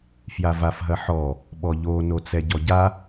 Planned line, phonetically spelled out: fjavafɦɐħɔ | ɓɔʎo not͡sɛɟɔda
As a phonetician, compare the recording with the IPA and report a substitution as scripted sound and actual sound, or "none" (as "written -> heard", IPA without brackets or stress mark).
d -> ɟ